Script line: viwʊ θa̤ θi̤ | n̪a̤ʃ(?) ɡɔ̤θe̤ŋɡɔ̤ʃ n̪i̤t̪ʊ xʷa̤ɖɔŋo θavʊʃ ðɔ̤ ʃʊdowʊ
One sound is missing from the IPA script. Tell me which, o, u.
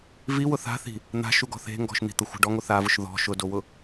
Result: u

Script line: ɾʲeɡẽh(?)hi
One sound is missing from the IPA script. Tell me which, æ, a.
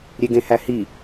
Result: æ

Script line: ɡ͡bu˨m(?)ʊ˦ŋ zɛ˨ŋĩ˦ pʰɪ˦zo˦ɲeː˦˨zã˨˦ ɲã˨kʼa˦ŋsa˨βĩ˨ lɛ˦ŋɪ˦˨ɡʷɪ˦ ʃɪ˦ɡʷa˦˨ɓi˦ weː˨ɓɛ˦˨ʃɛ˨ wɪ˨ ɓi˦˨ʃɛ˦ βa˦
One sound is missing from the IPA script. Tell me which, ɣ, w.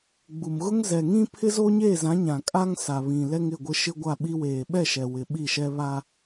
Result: ɣ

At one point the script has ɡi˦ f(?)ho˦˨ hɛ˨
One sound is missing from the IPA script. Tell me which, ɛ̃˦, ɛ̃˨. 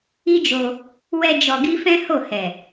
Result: ɛ̃˦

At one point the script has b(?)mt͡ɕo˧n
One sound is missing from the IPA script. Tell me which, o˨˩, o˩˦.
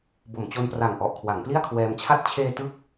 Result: o˨˩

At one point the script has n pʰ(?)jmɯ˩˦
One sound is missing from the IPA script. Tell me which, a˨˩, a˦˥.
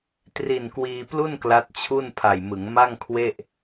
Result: a˨˩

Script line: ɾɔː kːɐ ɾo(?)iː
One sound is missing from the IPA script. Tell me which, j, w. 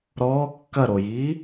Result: j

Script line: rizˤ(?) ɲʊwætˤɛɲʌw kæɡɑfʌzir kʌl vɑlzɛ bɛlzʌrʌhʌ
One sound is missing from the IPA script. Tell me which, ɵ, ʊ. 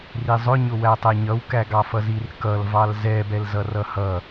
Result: ʊ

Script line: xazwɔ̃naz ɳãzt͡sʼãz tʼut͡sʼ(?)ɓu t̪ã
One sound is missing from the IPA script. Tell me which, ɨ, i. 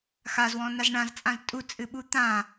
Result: ɨ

